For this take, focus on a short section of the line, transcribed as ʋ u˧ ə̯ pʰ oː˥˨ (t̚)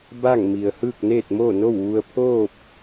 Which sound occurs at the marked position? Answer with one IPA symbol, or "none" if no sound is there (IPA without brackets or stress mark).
p̚